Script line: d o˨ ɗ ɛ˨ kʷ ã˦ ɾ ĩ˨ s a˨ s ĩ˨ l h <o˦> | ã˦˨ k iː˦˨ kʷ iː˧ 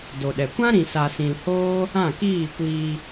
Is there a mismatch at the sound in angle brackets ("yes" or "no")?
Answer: yes